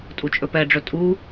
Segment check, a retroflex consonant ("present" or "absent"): present